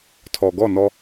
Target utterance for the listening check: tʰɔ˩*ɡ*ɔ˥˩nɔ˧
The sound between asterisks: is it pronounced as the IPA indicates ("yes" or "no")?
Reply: yes